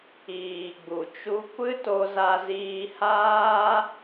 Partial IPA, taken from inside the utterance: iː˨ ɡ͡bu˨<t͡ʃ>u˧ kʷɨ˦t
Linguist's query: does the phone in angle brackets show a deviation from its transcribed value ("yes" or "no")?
no